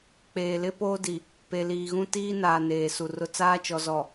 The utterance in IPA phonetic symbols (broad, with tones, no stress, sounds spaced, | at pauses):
k͡p eː˨ l ɪ˦ p oː˦ d i˨ | p e˨ l iː˨ ɣ ũ˦ t iː˦ n aː˨ n eː˨ s u˨ r ʊ˦ t͡s aː˦ t͡ʃ ɔ˨ z ɔ˨